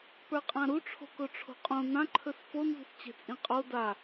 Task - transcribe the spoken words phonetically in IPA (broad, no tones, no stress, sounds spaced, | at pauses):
p ə˞ qʼ ã ɾ u ʈ͡ʂʰ o̤ k o ʈ͡ʂʰ o̤ qʼ õ n ã ǃʰ ɵ s f o n z ṳ s t͡ɕ e̤ t͡sʼ ĩ qʼ o d a